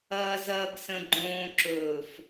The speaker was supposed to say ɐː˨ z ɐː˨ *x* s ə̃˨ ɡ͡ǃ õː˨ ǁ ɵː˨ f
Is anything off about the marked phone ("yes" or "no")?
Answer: yes